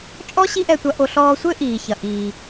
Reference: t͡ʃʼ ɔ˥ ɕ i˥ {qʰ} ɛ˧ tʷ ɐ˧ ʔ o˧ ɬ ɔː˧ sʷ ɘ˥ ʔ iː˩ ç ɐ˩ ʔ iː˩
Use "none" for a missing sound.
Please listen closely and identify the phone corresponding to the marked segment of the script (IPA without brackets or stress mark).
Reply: ʔ